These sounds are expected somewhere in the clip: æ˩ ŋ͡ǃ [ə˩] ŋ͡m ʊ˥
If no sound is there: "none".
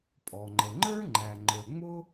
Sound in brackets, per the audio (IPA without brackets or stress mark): ə˞˩